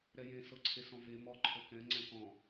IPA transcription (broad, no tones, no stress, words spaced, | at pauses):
ɾɛjẽ sɤǀʰesɔ̃ve mɔ ǃʰɤkɛ̃ ŋ͡ǀɛ̃kɔ̃